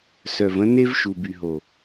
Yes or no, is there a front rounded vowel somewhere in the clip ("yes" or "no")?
yes